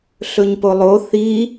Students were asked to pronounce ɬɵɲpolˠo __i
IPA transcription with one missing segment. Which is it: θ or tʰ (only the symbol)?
θ